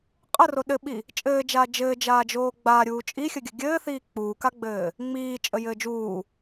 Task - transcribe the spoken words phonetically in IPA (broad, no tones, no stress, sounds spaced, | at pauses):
qʼ ə r o ɗ ɘ ɓ i | t͡ʃʼ ɘː d͡ʒ aː d͡ʒ ɘː d͡ʒ aː d͡ʒ oː ɡ͡b aː ɾʲ uː t͡ʃʼ i xʲ ə ɡʲ ə ɡʲ ɘː θ iː k͡p uː k a ɡ͡b ɘː | ŋ͡m iː t͡ʃʼ ə j ɘː d͡ʒ uː